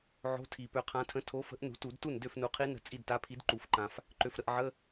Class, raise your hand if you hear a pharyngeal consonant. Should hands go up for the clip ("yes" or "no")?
yes